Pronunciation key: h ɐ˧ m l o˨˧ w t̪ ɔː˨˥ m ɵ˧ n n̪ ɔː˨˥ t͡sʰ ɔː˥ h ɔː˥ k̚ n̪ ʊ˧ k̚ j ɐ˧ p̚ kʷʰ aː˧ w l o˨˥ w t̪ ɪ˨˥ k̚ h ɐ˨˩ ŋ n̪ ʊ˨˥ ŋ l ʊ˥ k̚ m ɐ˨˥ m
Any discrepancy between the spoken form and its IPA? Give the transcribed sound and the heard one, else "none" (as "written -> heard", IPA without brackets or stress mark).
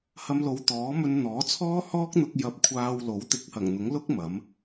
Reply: none